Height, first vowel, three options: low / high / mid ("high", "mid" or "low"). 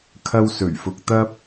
low